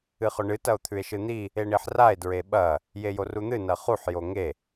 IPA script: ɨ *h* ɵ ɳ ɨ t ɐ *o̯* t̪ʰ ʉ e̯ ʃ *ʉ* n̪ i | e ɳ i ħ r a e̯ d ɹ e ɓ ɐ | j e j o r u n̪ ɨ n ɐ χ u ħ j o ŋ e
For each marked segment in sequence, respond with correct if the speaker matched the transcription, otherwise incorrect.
incorrect, correct, incorrect

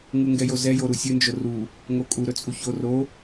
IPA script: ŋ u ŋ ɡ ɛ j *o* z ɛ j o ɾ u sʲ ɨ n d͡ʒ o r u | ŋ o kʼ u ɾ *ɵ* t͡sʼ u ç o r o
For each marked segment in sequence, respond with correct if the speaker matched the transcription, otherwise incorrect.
correct, correct

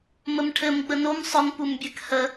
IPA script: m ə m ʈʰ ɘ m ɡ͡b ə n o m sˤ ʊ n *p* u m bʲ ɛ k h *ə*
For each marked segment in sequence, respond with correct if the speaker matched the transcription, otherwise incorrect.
correct, correct

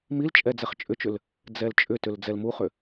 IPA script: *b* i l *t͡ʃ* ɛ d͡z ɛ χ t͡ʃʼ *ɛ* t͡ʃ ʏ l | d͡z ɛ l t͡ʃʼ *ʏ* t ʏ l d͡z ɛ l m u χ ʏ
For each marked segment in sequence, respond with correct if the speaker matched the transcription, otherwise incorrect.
incorrect, incorrect, incorrect, correct

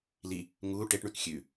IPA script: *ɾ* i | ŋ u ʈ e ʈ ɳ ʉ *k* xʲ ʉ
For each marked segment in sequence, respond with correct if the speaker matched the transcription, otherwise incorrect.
incorrect, correct

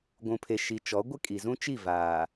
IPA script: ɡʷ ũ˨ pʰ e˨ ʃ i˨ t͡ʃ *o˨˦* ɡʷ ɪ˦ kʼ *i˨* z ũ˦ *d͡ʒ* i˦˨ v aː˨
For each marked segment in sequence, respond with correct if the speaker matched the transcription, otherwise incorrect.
incorrect, correct, incorrect

